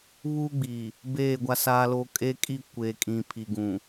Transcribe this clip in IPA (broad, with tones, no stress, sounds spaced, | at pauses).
β uː˦ ɡ͡b iː˨ | b eː˦˨ ɡʷ a˦ s aː˦ l o˦ kʼ eː˦ kʼ i˦˨ kʷ eː˨ kʼ ĩ˨ pʰ i˨ ɡ ũ˨